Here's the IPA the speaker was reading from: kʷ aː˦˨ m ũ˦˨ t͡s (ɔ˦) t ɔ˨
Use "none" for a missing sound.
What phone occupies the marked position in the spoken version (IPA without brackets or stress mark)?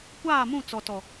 ɔ˨